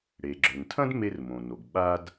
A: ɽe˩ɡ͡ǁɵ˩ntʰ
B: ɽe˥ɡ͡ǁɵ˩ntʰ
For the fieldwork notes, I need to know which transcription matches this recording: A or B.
A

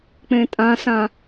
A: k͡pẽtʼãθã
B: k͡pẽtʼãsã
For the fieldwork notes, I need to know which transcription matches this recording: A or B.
B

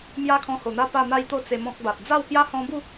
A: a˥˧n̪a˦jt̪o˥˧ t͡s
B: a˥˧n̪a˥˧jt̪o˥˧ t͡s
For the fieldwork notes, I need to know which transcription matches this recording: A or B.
A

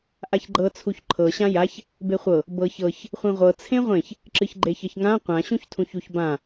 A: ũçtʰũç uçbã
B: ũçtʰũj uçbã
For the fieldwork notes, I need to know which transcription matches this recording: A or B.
A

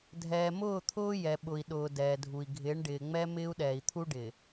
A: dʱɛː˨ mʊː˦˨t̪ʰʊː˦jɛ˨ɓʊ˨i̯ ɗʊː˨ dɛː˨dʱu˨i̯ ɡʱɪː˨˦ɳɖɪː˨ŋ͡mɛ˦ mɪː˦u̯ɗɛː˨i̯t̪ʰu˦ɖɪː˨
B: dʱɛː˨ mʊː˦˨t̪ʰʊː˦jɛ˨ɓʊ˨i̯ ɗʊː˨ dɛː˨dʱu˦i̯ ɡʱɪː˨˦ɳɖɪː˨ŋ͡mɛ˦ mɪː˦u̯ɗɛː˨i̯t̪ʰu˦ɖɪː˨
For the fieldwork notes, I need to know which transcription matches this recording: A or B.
A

